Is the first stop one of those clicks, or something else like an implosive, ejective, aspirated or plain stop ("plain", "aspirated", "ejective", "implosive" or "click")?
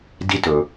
plain